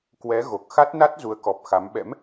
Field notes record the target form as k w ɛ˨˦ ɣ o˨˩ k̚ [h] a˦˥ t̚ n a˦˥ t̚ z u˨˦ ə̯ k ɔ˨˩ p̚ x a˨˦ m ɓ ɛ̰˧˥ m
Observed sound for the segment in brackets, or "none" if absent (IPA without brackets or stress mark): x